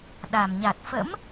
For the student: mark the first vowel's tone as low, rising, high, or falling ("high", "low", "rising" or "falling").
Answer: low